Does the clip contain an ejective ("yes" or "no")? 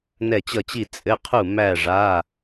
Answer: yes